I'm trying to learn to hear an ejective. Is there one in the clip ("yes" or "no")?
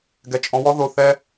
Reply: yes